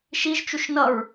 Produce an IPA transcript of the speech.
ʃiʒt͡ʃuʃ nʌɹ

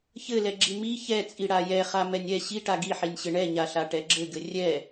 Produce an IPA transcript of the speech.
çɘlɛɡ͡ǁi mi çɛt͡sʼi ɽajɛχa mɛnʲɛ ɕi ʈaɡiħinʲɕɘ ɳɛɲaɬa ʈɛɡ͡ǁɘɡɘ rʲɛ

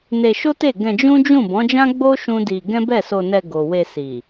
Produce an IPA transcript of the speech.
ne˧ʃo˦te˦˨ ɡɛ̃˧d͡ʒũ˦d͡ʒũ˦˨ bɔ̃˨˦d͡ʒã˦ ɡ͡bo˦ ʃũ˦di˧ ɡɛ̃˦bɛ˦˨so˧nɛ˧ ɡo˨we˧ si˨

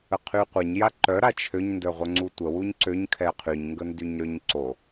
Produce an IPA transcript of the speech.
əqʰyqʷɛɲ jaǃœ ɾat͡ʃʰøɲ ndœʁʷœŋ͡ǀutʷə wuɲǀøɲ kʰɛqʰyɲ ŋɡəndyɲɾøɲǀo

